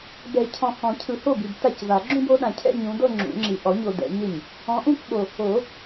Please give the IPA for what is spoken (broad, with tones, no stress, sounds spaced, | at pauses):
b ɛ˨˩˦ cʰ ɔ̃˨ h ɔ̃˨˩˦ cʰ ɯ˨ h o˥˩ b i˨ b t a˥˩ c v a˨˩˦ ɡ͡ǁ ũ˥˧ b o˨˦ ɗ ã˨ cʰ ɛ̰˥˧ ɲ ũ˨˦ d ɤ˥˧ ŋ͡ǁ ṵ˨˩˦ ŋ͡ǁ i˨ ʔ ɔ˨˩˦ ɲ o˨ d ɛ̰˨˩˦ ɲ e˥˩ ɲ | ɔ̃˨˦ ʔ ũ˥˧ k ɓ o˨ | o˨˩˦